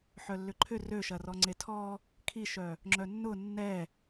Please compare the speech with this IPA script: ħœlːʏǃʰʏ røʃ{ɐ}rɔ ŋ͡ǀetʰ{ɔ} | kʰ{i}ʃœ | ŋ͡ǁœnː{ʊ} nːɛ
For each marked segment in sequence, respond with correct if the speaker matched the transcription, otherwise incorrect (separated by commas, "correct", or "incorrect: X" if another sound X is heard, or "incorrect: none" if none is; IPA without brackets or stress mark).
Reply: correct, correct, correct, correct